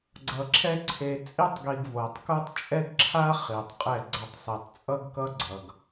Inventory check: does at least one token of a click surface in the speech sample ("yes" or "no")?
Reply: yes